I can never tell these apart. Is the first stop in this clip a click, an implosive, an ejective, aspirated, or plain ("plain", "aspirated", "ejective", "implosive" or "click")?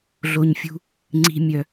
click